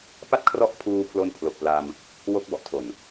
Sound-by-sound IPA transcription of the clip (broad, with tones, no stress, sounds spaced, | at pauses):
p a˥˩ t̚ kʰ r ɔ˦˥ ʔ pʰ uː˧ pʰ l o˧ n pʰ l o˨˩ k̚ p l a˧ m | w o˦˥ k̚ b ɔ˨˩ ʔ tʰ o˨˩ n